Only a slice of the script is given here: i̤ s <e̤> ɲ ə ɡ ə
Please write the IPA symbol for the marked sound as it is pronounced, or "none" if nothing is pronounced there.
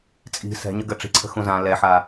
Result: ɛ̤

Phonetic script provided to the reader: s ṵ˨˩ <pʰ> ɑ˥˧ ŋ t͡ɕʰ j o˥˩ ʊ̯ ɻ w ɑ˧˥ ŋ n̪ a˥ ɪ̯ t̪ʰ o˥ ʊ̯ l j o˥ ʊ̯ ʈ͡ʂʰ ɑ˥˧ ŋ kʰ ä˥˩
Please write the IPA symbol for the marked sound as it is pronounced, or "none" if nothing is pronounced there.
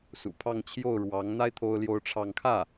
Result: pʰ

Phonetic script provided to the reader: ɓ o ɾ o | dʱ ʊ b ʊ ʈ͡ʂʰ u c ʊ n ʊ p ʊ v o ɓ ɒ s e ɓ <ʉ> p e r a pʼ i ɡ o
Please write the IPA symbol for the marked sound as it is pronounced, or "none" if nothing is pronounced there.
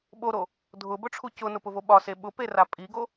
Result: ʊ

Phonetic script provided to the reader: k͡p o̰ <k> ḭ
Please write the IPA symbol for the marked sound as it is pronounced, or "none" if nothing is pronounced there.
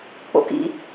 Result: k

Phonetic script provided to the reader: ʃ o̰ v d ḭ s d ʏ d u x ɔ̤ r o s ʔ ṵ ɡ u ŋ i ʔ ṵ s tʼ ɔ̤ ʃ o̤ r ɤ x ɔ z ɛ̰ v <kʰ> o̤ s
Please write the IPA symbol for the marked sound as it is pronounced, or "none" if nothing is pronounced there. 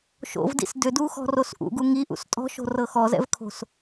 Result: kʰ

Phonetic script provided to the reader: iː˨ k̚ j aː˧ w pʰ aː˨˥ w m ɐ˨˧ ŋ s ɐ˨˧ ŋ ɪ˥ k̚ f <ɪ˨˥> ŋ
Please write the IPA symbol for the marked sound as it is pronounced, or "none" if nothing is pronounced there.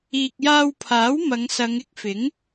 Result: ɪ˨˥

